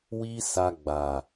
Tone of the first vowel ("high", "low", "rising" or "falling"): high